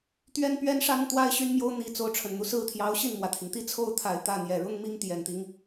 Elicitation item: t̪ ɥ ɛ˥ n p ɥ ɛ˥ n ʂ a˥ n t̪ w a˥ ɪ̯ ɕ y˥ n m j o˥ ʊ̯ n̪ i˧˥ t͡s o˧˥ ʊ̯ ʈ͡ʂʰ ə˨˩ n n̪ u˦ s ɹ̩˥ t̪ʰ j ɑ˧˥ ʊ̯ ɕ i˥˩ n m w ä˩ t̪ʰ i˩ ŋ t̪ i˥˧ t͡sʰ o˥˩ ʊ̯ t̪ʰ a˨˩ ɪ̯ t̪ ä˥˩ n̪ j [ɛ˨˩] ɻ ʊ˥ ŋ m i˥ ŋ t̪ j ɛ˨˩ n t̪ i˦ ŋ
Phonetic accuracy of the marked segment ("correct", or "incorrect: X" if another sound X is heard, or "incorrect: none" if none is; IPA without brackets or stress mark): correct